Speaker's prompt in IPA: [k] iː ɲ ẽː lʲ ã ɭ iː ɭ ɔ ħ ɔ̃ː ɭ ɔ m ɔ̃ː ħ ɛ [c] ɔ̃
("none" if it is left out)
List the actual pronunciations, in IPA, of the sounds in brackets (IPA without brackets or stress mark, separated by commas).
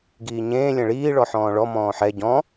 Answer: ɡ, ɟ